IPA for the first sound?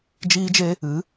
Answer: d͡ʒ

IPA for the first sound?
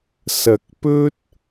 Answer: s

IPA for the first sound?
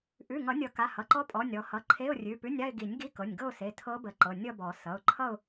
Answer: ʔ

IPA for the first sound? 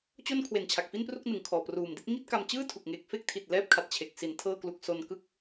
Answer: t͡ɕ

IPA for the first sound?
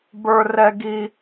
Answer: b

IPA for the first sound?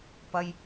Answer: p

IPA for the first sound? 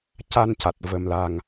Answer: c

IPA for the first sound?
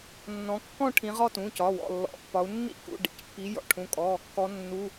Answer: nː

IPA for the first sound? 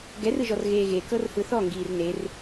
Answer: ɡ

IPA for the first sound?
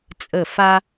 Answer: t͡sʼ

